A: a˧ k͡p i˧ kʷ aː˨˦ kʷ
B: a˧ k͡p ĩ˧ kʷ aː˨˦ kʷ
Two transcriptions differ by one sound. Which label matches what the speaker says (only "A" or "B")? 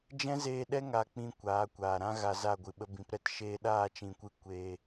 B